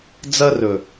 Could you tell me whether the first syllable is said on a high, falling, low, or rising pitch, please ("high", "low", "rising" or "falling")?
high